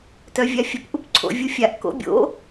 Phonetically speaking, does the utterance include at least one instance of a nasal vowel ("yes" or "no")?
no